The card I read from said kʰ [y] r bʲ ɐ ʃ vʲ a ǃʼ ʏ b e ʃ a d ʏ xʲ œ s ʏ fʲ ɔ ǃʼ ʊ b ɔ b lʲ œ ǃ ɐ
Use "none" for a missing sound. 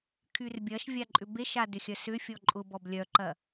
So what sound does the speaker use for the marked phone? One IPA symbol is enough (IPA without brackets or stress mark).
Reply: y